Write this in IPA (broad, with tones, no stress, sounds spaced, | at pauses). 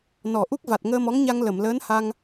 n ɔ˨˩˨ ʔ u˦˥ k̚ v a˨˩ t̚ ŋ əː˧ m ɔ˧˥ ŋ ɲ a˧ ŋ l ə˨˩˨ m l əː˧˥ n h a˧ ŋ